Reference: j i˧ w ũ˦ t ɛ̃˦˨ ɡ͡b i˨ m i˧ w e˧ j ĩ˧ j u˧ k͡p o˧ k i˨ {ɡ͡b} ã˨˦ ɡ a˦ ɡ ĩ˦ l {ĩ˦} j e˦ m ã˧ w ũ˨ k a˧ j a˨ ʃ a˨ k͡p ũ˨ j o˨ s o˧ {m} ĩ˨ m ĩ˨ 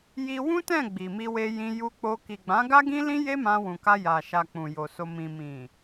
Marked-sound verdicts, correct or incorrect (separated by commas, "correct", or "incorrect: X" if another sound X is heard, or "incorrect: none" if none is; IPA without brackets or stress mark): correct, correct, correct